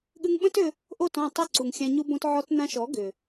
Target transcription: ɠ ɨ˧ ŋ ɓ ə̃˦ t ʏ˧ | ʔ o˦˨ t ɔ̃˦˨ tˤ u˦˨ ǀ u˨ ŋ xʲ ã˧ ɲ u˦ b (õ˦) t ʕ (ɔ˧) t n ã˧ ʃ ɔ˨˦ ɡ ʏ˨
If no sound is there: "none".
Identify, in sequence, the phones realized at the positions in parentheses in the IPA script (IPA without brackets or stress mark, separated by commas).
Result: õ˦, ɔ˧